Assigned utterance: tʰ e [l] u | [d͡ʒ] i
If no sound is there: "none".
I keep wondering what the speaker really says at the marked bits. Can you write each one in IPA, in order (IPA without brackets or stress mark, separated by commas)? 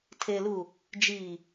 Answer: l, d͡ʒ